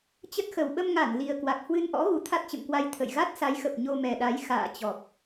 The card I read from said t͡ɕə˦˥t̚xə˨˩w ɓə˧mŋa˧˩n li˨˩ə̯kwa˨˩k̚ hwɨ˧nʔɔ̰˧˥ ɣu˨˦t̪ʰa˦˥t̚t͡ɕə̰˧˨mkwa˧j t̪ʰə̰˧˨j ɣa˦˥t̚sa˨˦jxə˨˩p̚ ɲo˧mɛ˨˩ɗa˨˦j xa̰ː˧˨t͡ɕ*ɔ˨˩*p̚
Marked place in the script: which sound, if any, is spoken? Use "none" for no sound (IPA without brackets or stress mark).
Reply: ɔ˨˩